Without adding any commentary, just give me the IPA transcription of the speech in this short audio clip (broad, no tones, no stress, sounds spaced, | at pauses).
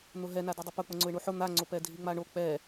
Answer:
n̪ ʊ ɦ ɛ n a d i dˤ ʊ p ʊ k͡p ʊ ŋ͡ǀ ʊ ɪ̯ ɳ u ħ ʊ n̪ a ŋ͡ǀ o p ɛ dʱ i ŋ͡m a ɳ o k͡p ɛ